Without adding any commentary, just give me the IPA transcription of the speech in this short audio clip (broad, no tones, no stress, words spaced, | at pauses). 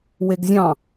weɡzʲɑ̃